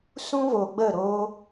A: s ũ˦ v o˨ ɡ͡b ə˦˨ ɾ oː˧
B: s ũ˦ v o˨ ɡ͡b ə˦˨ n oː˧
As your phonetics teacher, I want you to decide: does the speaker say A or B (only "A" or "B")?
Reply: A